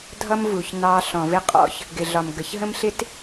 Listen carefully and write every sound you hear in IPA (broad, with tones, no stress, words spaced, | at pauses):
dʱʌ˦mvu˨ç nɑ˦ ɬɔ̃˨vɪ˦qʼɔ̰˦ç | ɡɪ˨ɮɒ˨m ɡə˨ç ɦə̃˦mɬɪ˦t